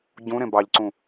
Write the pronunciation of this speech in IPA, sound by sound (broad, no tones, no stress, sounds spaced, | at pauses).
ɟ ũ ɾ ẽ b ɑ ʎ ǀ ũ